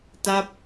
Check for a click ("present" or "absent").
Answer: absent